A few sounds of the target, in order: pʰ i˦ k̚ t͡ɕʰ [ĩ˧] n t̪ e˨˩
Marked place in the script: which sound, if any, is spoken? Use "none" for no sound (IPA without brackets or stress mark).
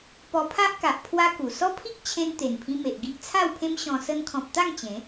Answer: ẽ˧